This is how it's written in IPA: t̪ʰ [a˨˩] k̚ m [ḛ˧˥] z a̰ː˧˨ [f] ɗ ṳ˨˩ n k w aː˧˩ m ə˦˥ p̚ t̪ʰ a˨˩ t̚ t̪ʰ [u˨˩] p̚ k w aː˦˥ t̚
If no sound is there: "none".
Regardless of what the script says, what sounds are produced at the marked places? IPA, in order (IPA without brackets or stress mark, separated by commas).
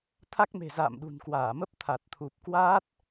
a˦˥, e̤˨˩, m, u˨˩